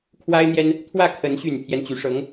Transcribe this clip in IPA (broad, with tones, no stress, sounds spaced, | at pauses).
kʰ w a˥ ɪ̯ n̪ j ɛ˥ n | t̪ʰ w ä˥˩ kʰ ə˧˥ n ɕ y˨˩ n pʰ j ɛ˦ n t͡ɕ y˧˥ ʂ ɤ˧˥ ŋ